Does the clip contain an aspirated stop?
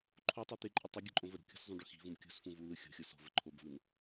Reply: yes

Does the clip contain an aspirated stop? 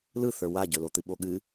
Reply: no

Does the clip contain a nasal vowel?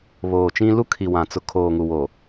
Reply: yes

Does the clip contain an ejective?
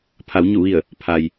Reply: no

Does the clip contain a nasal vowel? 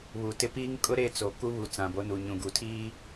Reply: yes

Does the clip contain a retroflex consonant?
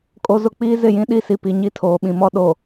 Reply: no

